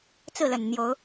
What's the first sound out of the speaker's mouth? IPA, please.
t͡s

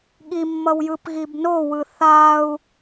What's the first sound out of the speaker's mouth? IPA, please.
ɠ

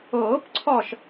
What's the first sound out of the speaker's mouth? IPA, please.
ɤː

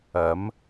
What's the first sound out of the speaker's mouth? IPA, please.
ɐ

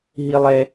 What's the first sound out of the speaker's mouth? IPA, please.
ɦ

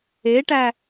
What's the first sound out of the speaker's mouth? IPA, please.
e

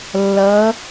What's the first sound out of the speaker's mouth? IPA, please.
lː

